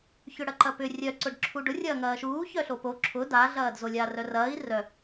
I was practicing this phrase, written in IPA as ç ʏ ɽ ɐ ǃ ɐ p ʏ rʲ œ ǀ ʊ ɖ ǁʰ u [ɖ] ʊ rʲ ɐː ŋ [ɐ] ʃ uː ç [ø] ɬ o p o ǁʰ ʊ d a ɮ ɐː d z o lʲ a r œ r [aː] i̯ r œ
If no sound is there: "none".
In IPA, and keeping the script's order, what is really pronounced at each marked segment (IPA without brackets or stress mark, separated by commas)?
ɖ, ɐː, œ, ɐː